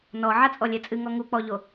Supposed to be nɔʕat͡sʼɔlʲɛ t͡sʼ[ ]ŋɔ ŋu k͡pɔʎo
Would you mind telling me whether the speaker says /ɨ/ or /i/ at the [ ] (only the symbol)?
ɨ